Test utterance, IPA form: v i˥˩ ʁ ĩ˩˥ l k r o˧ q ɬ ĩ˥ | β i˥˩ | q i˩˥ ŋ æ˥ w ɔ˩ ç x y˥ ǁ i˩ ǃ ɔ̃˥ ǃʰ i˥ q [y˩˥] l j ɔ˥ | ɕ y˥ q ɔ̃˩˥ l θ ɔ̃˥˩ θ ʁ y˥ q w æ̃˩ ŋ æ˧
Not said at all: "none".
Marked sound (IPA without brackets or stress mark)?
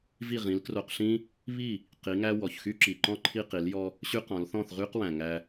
i˩˥